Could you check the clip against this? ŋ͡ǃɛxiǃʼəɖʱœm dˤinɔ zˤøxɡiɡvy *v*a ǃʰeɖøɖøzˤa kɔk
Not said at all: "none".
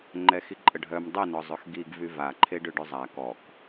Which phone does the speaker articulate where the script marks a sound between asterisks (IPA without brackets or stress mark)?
v